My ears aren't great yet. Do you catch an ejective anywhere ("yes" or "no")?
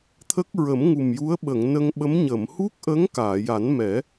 no